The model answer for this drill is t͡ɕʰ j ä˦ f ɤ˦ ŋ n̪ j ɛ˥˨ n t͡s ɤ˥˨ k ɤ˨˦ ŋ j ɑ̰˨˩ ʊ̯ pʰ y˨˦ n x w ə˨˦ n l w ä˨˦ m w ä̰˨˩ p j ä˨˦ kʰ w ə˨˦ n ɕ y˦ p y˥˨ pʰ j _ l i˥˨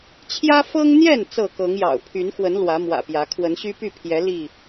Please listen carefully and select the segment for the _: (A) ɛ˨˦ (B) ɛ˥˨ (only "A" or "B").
A